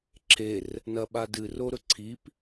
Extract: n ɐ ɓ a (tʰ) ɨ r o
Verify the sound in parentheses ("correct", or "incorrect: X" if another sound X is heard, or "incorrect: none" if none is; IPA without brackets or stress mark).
incorrect: d